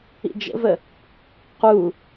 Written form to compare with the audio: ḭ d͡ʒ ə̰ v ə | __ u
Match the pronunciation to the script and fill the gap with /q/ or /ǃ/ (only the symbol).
q